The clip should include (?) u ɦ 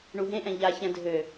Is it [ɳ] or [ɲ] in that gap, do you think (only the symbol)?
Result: ɳ